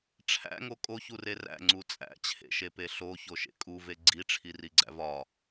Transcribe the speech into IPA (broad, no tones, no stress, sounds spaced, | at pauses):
ʈ͡ʂʰ æ̰ ŋ o kʼ o ç u r e r æ̰ ŋ͡ǀ u t͡sʼ æ̰ t͡ɕʰ ḛ ʃ e p e ɬ o ç o ʃ ḛ kʼ u v e ɡ͡ǀ i ʈ͡ʂʰ i r i ɡ͡ǀ æ̰ v ɒ